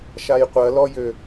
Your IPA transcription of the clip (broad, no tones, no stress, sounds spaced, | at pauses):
ʃ a j qʷ ɐ l ɔ j ø